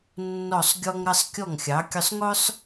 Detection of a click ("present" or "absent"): absent